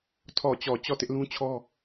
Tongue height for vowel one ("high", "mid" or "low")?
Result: mid